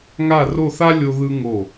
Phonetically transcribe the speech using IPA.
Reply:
ŋa˥˧ro˥˧θa˥ lʲo˧ðɯ˧ ŋo˧˩

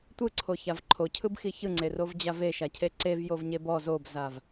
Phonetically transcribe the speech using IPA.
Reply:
tʷɯǀʰoçav ǃʰocʰɯbxi çɯŋ͡ǀerovd͡ʑa veʃacʰe ǀevjovɲeb ɔ zobzav

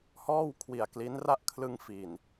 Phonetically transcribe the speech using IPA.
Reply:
hɔː˥˩wkʰwi˨˩a̯ kli˦˥n ra˥˩ʔkʰlɯ˧ŋ fi˨˩n

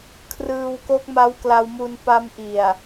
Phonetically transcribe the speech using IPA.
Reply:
kʰrɯː˧wko˦˥k̚ma˦˥w kla˧wmu˧n pa˦˥mʔi˨˩a̯

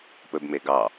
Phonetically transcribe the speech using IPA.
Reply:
pɵbme ɡɑ

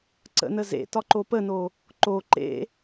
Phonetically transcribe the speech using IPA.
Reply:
ǀə̰nə zḛtɒǃo pəno | ǃo ǃḛ

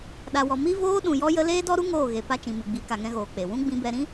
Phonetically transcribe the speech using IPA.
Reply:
ɗa˨wɔ˨ mi˦voː˦ ɗũ˨jɔ˧jə˧ leː˦dɔ˦ɾu˦ ŋoː˦˨ɣe˨ pa˧t͡ʃĩ˨ mɨ˨ɡ͡bi˨˦ ka˨ŋɛ̃˧ɣoː˨ k͡pe˨wũ˦ ɡ͡bĩ˧bɛ˧ɾĩ˦

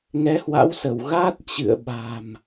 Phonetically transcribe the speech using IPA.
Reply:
ŋɛ˨˦hwa̰˧˥wsə˧˩wɣaː˦˥t̚ t͡ɕɨ̰˧˨ə̯ɓa̤˨˩m

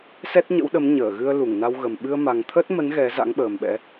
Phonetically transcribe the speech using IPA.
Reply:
sɛ˦˥t̚ɲə̰˧˥wɗə˨˦m ɲəː˧˩ɣɨ˧ə̯lu˧˩ŋ na˧wɣə˨˩m ɓɨ˧ə̯ma˨˩ŋ t̪ʰə˦˥t̚mə˨˦n ɣɛ˨˦za̰˧˥ŋɓəː˨˩mɓɛ̰˧˥

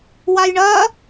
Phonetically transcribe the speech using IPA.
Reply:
wajɳɐ

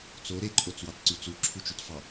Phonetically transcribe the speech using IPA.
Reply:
t͡so ɾeǃʼot͡swɑt ǀyt͡su ǁʰut͡ʃytfɑ

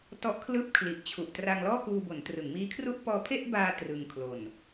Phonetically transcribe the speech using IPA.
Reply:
tɔ˦˥ʔkʰlɯː˥˩p̚kʰli˨˩ʔt͡ɕʰu˨˩ʔ tra˧ŋlɔː˥˩ kuː˧bo˩˦n trɯ˩˦ŋmiː˦˥kʰru˥˩ʔ pɔː˧pʰe˥˩ʔbaː˧ trɯ˧ŋ kʰlo˨˩n

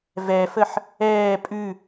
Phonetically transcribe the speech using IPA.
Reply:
vɛfəħ | ɛː pʼʉ

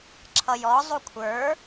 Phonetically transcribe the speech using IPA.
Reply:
ǁʰʌjɔ zˤukʷʰə˞

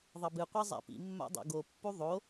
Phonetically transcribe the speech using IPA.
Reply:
ðˤʌbɨqʷi zˤa̰pḭmːa̰ dˤo̰ɡopːu ðˤo

